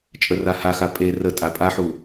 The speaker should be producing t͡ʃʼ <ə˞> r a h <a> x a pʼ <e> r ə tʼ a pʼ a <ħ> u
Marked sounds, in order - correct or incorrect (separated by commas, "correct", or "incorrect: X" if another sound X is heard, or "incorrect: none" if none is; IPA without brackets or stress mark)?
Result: incorrect: ə, correct, correct, correct